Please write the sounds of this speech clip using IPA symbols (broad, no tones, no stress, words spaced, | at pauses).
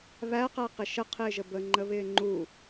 βæqæqɪ ʃəqʰɪːʒə bəŋ͡ǃəβɪː ŋ͡ǃu